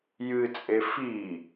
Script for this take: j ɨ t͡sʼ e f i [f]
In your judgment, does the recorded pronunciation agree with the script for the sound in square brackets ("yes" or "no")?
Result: no